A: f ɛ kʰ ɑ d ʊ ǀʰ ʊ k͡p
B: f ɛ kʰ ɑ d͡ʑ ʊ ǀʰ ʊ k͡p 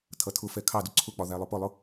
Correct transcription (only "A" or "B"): A